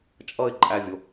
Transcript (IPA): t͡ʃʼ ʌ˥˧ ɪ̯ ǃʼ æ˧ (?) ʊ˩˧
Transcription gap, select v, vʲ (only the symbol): vʲ